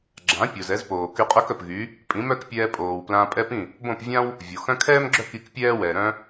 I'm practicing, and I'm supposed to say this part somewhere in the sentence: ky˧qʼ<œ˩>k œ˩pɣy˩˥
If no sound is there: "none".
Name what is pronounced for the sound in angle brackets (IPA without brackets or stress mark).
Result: œ˥